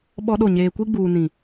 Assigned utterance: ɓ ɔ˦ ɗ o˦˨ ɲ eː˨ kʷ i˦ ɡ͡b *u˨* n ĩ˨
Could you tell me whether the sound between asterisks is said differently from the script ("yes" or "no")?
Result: yes